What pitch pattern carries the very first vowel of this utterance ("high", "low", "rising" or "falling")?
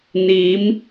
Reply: rising